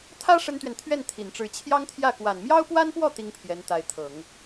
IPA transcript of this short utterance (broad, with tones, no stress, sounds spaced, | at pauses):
t̪ʰ ä˥ ʂ ə˥ n t̪ ɥ ɛ˨ n t̪ʰ ɥ ɛ˥˩ n t̪ʰ i˨˩ n ʈ͡ʂ ɻ̩˧˥ t͡ɕʰ j ɑ˥ ŋ t̪ʰ j ä˥˩ k w a˨˩ n m j ɑ˥ ʊ̯ p w a˥ n p w ɔ˥˩ t̪ i˥ ŋ pʰ j ɛ˧˥ n t̪ a˧˥ ɪ̯ t̪ʰ ɤ˨˩˦ ŋ